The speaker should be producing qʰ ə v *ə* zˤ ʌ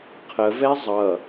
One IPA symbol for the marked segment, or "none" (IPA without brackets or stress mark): ɛ